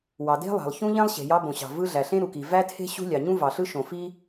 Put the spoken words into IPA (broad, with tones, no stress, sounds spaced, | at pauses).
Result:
w ɑ˩ d e̤˥ lˠ ɑ̤˩ lˠ ç ũ˥ ʎ ẽ˥ lˠ ɕ e̤˩ j ɑ˥ b õ˩ ɕ ɑ̤˩ v ɯ˥ ɮ æ˩ ɬ ẽ˥ ɾ u˩ k i˩ v æ˥ tʰ e̤˥ ɕ ṳ˥ lʲ ɑ˩ ɲ ũ˥ v ɑ˩ ɬ ɯ˥ ʃ õ˩ f i˥